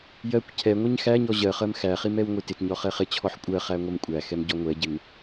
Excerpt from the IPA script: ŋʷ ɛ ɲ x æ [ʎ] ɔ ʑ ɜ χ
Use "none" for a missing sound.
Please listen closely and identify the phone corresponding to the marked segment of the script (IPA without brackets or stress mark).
ɲ